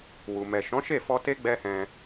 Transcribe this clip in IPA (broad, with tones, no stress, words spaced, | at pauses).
wu˨ mɛ˨ ʃɔ̃˨˦ʃe˦˨fɔ˧te˦ ɡ͡bɛ˦hɛ̃˧